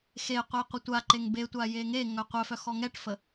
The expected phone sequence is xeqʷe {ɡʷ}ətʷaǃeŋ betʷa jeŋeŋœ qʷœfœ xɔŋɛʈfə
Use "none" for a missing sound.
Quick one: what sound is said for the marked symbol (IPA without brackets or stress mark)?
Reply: qʷ